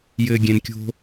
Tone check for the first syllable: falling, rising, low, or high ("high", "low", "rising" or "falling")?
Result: low